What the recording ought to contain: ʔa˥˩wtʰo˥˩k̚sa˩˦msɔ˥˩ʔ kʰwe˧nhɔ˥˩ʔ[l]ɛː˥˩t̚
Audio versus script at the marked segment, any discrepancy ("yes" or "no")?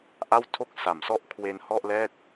no